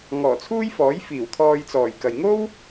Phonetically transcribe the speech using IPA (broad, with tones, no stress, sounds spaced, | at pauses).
ŋ ɔː˨˩ t͡sʰ uː˥ j f ɔː˨˥ j f iː˨˩ w t̪ʰ ɔː˧ j t͡s ɔː˨˩ j k ɐ˨ j ŋ o˥ w